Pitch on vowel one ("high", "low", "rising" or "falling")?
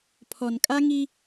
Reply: low